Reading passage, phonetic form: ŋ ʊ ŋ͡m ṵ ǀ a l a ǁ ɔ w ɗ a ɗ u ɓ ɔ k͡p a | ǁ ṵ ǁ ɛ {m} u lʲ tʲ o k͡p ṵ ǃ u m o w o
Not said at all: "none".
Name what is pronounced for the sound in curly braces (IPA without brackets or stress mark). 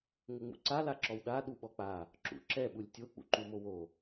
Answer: ɓ